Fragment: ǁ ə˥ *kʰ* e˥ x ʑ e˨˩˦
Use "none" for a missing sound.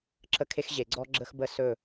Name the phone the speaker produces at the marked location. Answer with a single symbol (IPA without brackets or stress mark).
kʰ